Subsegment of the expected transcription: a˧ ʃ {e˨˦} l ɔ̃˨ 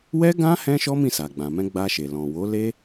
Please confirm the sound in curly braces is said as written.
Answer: no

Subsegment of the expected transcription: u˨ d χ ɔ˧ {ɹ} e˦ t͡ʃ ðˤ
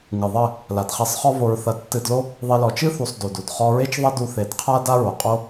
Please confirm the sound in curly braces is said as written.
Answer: yes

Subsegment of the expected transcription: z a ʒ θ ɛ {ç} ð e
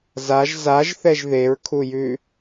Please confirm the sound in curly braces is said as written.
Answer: no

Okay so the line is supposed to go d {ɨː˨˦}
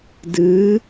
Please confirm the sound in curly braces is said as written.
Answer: yes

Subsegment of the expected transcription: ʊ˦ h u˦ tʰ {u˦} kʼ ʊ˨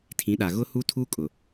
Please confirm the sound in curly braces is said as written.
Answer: yes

